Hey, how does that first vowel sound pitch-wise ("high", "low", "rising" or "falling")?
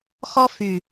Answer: high